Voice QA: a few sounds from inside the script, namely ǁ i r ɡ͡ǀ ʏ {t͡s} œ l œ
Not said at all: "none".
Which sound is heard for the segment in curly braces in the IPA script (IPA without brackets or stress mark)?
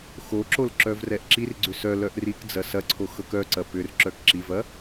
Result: s